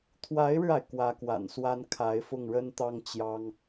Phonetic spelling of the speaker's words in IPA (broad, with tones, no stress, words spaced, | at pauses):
t̪ʰwa˧˥ɪ̯ɻɻ̩˧a˩ɪ̯ kwä˧˥kwa̰˨˩nswa˥n kʰa˧˥ɪ̯fʊ˥˩ŋɻə˥nt̪ɑ˥ŋ t͡ɕjɑ˥ŋ